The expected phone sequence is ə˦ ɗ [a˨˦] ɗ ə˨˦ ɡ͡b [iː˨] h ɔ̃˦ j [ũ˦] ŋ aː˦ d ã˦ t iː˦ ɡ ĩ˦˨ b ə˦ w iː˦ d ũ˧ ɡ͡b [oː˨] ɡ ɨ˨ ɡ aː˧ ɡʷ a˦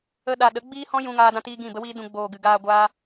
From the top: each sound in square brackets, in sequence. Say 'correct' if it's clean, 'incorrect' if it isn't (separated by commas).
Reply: incorrect, incorrect, correct, correct